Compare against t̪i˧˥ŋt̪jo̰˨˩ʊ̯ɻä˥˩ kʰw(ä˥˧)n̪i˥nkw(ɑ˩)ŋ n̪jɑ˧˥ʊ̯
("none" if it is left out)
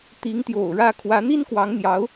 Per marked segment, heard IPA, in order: ä˧˥, ɑ˧˥

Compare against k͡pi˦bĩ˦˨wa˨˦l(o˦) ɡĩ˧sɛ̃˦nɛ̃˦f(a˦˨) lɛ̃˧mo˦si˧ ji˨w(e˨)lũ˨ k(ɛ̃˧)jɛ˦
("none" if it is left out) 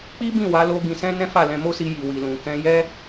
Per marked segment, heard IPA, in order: o˧, a˦˨, i˨, ɛ̃˧

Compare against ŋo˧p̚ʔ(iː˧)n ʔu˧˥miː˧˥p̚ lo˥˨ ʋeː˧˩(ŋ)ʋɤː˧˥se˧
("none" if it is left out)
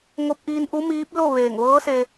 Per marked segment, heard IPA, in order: iː˧, ŋ

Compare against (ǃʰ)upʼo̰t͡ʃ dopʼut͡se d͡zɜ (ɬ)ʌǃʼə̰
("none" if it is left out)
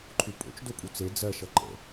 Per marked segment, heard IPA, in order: ǃʰ, ʃ

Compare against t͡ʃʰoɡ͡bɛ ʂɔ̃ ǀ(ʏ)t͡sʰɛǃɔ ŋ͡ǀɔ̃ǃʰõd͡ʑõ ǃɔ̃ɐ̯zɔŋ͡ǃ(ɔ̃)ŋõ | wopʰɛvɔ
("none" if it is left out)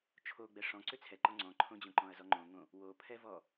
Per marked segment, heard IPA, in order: ʏ, õ

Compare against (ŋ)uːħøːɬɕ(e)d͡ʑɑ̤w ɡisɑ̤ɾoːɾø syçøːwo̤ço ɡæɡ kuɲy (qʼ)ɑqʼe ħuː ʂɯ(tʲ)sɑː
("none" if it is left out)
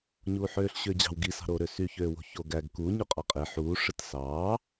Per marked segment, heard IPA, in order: ɲ, ø, qʼ, t

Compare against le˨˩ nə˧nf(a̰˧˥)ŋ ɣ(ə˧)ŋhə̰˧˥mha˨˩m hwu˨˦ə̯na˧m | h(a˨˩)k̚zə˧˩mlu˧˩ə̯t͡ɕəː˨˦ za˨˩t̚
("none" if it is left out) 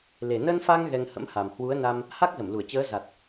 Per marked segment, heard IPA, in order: a˧, ɛ˧, a˦˥

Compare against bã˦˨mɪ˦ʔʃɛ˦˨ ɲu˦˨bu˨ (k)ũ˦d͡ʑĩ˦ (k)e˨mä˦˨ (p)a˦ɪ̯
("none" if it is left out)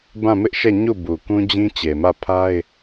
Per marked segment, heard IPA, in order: k, t͡ɕ, pʰ

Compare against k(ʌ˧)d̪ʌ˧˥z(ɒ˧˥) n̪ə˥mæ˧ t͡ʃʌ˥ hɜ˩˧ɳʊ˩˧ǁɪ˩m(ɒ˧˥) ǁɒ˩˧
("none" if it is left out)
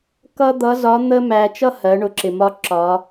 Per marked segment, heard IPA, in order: ʌ˥, ɒ˧˥, ɒ˧˥

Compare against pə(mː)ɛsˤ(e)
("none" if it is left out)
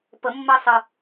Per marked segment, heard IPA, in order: mː, ɨ

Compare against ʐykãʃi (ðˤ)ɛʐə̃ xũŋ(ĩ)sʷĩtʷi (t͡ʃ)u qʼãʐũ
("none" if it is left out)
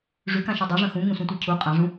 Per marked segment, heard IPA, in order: dˤ, ẽ, cʰ

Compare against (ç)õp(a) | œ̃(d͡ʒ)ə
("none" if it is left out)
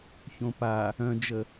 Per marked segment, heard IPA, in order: ç, a, d͡ʒ

